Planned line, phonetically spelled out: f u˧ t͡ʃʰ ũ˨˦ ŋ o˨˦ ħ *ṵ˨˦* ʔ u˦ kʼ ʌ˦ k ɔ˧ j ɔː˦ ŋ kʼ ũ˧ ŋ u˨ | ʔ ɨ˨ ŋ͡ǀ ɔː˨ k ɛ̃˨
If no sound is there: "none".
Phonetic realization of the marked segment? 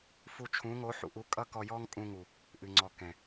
ṵ˨˦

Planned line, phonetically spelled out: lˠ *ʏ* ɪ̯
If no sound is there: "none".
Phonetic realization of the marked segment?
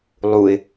u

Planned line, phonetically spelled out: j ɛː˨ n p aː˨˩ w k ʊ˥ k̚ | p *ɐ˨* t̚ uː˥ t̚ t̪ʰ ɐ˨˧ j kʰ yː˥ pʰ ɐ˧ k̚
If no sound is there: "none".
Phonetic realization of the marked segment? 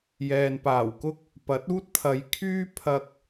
ɐ˨˥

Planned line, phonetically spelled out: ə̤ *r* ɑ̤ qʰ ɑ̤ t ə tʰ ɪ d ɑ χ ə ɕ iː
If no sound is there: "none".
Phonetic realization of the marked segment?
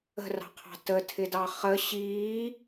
r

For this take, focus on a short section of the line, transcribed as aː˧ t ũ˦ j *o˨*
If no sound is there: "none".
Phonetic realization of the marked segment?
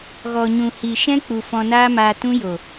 o˨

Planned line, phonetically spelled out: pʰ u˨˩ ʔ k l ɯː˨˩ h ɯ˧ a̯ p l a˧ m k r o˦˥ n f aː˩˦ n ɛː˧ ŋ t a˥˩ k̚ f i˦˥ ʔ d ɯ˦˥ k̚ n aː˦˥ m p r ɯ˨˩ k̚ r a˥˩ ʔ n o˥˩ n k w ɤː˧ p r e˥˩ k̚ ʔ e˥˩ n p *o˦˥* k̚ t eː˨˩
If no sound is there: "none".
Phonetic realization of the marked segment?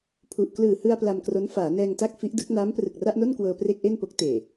o˦˥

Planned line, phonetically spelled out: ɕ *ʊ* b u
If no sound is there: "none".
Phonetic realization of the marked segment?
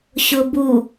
ʊ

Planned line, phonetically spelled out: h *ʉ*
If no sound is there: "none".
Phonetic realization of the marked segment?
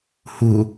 u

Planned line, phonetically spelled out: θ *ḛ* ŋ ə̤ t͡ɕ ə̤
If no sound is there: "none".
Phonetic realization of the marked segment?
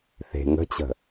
e̤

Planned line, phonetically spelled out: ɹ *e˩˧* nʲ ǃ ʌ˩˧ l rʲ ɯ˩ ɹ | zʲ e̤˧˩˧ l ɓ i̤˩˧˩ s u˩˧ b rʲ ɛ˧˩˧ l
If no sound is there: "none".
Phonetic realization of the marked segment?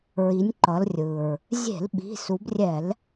i˩˧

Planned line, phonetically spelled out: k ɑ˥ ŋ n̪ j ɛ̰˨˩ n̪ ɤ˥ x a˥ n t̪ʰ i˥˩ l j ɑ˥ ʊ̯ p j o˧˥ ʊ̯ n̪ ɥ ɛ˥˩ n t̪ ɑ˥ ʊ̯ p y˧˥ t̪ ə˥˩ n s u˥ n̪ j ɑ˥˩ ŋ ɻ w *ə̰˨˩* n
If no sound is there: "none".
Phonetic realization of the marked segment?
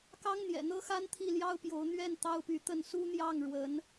ə˧˥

